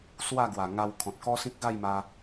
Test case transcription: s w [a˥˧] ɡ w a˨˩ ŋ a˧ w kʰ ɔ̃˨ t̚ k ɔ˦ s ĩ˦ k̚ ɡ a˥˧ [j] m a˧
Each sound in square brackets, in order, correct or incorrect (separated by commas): correct, correct